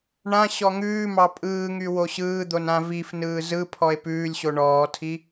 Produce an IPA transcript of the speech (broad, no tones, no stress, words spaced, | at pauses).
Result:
ɳã ɕɔŋʉːmɑ pʼɯːŋy woɕɯːd̪on ãvifnɯː zɯ pʰɔe̯pʉːlʲɕo ɳɔːtʰi